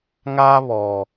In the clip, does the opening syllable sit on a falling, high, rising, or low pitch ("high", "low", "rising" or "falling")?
high